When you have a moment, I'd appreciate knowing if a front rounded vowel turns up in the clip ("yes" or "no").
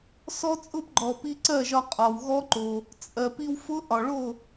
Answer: no